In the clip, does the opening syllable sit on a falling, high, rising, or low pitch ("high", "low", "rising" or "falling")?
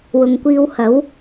low